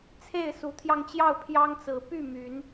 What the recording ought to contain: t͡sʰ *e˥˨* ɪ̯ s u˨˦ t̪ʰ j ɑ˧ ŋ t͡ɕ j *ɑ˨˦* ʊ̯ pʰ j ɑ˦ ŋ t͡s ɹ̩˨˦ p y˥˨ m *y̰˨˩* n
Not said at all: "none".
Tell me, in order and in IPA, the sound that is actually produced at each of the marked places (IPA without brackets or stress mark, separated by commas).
e˥˨, ɑ˥˨, y˨˦